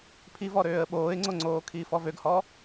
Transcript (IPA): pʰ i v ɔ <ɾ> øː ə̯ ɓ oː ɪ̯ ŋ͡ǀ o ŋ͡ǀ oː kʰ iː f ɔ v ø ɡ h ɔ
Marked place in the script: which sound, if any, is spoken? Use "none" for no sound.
ɾ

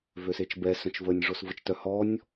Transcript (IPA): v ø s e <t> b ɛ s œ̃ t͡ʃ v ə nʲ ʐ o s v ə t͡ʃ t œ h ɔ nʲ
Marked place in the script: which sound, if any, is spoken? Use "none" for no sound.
t͡ʃ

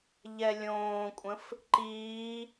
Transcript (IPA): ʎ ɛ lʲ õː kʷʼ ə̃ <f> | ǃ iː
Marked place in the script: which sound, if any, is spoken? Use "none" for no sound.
f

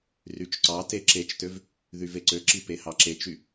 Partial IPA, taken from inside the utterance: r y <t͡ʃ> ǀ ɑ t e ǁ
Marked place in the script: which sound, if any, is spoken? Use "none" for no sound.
t͡ʃ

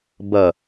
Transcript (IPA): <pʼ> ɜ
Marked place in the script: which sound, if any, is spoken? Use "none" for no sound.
b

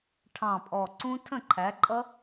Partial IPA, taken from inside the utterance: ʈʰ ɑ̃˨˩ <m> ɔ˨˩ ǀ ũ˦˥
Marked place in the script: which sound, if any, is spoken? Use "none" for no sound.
pʼ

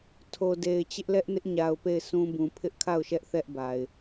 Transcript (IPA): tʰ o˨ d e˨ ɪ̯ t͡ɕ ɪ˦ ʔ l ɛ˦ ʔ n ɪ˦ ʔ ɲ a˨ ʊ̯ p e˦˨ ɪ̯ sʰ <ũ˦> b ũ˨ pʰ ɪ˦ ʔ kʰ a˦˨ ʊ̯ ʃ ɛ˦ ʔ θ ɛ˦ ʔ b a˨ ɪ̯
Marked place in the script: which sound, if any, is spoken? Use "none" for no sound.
ũ˦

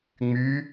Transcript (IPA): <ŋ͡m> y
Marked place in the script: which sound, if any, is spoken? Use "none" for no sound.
ŋ͡m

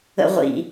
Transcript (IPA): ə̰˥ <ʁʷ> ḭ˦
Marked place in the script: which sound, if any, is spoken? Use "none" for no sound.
ʁʷ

